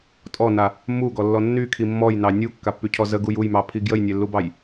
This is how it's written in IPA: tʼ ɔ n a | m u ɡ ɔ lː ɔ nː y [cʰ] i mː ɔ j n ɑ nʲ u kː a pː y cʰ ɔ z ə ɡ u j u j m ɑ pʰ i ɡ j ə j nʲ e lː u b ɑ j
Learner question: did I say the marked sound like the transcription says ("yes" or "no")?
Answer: no